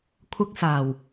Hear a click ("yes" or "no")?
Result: no